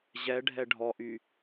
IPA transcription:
ʑ ɛ ɖʱ ɛ ɖʱ ɔ ʔ y

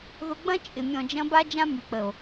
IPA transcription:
ð ʊ˧ ɡ͡b ɐ̃˦ t͡ʃʼ ɪ˨ mʲ ɔ̃˨ d͡ʒ ɐ̃˧ b a˦ d͡ʒ ã˦ m y˨ k͡p ə˨ o̯

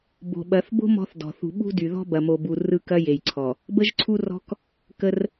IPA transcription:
b o̤˨ ɓ ɐ˨˦ θ b o̤˦ m ɔ̤˦ θ d ɔ̤˨ θ ṳ˨ ɓ ṳ˦ d y˨ ð ɔ̤˦ b ɐ˨ m o˨ b u˨ r ɯ˦˨ k ɐ˦ j e˨ j ǀʰ ɔ˨ | b ə˦ ʒ ǀʰ u˦ r ɔ̤˦ k | k ə˦ r

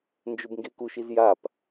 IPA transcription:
n d͡ʒ ɵ b ŋ ɡ e k u ʃ i z j a p

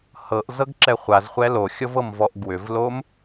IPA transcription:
h ɤ ʔ z ɤ ɡ ǁ ɛ χʷ a z χʷ ɛ l o xʲ ɤ v ɤ m v ɔ ʔ ɡ w ʏ v l o m

